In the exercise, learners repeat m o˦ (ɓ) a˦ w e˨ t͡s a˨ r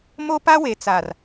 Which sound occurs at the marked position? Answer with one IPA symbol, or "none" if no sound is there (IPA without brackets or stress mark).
p